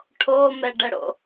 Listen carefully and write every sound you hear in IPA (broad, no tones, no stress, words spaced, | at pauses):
ʈʰomɛɖəɽo̰